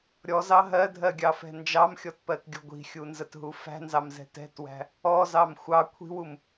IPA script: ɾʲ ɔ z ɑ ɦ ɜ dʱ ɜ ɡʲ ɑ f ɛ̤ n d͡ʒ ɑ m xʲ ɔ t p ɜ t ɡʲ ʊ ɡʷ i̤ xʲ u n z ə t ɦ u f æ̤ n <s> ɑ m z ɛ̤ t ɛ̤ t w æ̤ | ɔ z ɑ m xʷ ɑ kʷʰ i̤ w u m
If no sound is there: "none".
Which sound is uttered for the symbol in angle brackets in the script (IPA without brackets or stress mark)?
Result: z